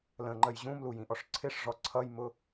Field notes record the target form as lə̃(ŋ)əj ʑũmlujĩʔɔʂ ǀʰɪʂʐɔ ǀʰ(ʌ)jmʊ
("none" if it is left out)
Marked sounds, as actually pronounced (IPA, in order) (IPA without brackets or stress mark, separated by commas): ŋ͡ǃ, ʌ